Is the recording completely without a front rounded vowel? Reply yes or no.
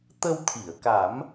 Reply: yes